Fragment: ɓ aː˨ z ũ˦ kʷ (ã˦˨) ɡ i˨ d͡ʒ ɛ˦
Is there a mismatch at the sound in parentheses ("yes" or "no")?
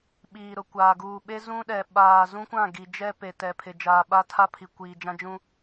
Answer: no